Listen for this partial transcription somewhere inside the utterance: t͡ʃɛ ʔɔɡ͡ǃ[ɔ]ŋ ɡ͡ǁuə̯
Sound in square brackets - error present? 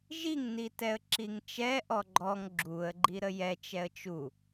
no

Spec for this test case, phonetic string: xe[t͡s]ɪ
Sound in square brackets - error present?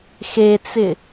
no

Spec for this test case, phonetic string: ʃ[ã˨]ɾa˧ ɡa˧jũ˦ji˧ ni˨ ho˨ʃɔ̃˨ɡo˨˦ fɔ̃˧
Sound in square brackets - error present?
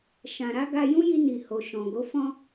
no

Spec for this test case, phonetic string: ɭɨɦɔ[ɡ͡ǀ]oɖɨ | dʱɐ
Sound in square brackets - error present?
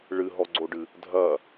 no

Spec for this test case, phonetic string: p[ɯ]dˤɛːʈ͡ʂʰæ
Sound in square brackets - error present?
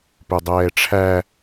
yes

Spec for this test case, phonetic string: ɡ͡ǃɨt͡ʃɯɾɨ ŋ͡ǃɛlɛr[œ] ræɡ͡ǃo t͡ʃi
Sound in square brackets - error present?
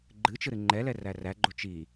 yes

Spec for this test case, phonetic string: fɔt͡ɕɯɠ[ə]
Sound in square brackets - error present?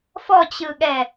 yes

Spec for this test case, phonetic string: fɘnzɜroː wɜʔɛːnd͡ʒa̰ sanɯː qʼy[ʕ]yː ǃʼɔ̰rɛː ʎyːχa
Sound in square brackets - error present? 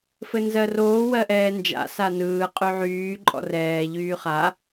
no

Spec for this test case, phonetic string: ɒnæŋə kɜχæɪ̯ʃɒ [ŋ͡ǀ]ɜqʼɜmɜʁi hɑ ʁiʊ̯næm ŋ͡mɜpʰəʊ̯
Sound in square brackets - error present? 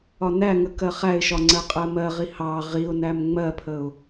no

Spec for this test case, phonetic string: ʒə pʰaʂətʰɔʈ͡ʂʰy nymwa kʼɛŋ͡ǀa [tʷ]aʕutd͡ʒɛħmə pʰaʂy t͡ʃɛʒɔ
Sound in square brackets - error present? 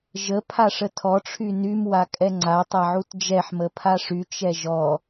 yes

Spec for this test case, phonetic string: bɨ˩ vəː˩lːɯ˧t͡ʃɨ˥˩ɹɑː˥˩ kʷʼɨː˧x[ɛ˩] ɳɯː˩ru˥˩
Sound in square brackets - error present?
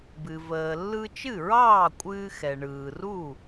no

